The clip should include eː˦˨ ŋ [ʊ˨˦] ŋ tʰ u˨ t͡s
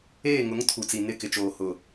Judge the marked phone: correct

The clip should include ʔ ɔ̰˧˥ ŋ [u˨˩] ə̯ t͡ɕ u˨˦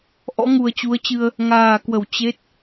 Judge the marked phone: correct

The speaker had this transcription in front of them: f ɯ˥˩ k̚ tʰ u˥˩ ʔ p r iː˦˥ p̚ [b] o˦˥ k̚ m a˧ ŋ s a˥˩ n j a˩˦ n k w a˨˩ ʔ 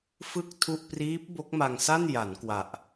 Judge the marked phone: correct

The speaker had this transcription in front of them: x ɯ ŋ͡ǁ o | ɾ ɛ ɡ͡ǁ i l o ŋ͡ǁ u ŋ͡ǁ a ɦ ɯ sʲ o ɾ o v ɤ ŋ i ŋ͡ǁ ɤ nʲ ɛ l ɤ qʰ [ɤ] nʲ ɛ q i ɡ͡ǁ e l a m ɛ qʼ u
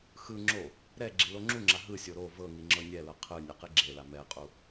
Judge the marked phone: incorrect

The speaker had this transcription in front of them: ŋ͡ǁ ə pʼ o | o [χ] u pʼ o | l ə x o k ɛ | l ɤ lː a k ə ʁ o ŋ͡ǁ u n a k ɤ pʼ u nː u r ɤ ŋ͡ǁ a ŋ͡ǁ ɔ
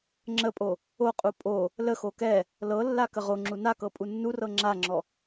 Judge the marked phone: incorrect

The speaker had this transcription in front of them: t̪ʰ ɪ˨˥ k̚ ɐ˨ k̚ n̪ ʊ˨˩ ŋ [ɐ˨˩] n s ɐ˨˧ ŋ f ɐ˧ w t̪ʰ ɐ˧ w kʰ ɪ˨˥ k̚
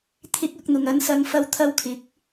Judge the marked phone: incorrect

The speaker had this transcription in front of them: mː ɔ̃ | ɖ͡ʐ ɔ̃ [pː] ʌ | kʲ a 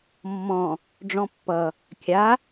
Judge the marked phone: correct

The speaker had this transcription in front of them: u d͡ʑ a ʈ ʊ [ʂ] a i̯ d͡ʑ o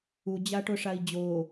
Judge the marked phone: correct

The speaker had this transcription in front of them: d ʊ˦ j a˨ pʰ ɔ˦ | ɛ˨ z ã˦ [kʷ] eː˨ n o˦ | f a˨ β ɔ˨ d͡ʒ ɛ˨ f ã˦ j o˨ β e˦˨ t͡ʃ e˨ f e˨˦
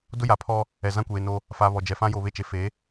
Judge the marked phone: correct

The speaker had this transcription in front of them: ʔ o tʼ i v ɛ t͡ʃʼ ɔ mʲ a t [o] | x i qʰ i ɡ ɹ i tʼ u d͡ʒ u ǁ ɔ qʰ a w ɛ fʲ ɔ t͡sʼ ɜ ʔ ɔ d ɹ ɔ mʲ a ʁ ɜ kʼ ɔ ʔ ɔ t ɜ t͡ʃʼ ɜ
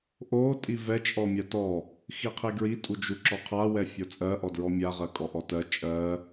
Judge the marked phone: incorrect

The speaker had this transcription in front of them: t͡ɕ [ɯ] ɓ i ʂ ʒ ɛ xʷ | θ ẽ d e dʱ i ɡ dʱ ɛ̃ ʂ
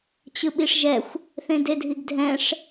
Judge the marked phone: correct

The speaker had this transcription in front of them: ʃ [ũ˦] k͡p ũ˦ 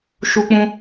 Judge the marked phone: incorrect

